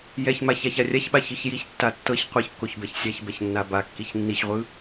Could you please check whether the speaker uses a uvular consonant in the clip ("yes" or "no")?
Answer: yes